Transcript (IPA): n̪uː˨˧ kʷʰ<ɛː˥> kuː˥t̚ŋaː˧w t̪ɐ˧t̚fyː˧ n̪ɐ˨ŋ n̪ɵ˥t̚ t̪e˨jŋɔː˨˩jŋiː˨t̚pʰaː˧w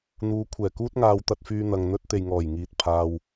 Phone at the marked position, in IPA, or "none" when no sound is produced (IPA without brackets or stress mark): ɛː˨˩